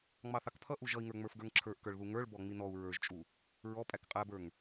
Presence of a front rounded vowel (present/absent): absent